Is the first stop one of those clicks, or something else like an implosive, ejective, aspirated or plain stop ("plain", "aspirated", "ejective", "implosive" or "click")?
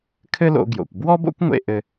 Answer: aspirated